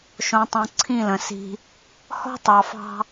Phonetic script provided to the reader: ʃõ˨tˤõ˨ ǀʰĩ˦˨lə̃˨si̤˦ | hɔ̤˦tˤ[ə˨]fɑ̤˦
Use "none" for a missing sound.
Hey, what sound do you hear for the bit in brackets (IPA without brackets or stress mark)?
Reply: ɑ˨